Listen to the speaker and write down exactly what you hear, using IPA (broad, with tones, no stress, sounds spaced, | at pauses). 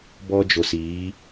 b ɔ˦ d͡ʒ o˨ s iː˨˦